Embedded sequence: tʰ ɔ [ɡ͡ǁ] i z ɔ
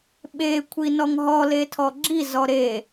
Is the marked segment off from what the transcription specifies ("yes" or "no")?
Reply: no